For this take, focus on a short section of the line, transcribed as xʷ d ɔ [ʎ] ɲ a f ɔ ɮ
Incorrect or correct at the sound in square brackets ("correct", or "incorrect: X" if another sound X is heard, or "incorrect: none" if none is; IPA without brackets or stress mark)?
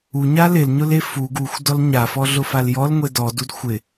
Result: incorrect: l